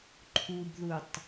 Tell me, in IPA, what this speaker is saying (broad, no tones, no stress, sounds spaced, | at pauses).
ǃʰ u b ð u tˤ